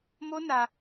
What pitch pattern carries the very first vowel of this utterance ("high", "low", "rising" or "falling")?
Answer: high